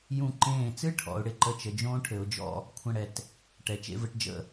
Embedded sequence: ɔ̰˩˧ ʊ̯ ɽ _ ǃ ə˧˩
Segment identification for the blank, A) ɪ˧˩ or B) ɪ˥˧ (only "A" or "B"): A